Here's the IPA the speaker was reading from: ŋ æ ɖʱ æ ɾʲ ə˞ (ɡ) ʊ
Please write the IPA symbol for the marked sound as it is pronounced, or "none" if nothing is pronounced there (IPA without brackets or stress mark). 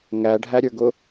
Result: ɡ